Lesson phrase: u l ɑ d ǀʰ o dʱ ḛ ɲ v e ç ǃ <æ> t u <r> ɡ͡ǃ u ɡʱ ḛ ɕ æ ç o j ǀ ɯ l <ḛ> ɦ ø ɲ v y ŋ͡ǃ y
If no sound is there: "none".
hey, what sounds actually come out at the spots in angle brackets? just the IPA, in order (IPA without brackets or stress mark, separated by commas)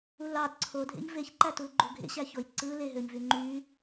æ, l, e